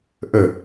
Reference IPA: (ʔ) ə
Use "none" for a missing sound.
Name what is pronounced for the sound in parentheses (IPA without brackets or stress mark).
ʔ